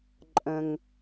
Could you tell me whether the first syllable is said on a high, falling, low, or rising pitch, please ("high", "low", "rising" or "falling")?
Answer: low